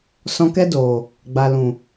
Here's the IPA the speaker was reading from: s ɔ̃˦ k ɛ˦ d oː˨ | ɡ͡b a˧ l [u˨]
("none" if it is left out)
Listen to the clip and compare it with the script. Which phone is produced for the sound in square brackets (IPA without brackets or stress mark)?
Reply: ũ˨